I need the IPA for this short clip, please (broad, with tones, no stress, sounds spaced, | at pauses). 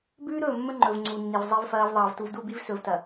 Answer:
b ʉː˦ ɾ ɵː˦˨ mː ɵ˦ ŋ͡ǃ ɵ˨ v ŋ͡ǀ u˨ nː i˨ v zˤ i˦ v f ɐː˦ v ðˤ ɐː˨ v t u˨ v d u˦˨ b i˦ v s ɵ˨ v t ɐ˨